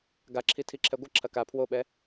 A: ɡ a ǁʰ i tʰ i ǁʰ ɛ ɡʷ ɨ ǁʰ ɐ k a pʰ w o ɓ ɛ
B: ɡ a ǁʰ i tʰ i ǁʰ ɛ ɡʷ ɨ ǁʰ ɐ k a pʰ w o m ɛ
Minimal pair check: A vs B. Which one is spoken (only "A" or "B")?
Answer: A